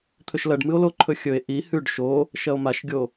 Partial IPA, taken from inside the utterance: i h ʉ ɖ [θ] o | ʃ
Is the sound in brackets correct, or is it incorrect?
incorrect